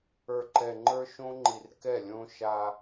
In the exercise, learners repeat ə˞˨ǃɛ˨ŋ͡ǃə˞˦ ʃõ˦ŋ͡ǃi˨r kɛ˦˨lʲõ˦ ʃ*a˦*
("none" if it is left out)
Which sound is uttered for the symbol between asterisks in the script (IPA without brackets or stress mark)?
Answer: a˦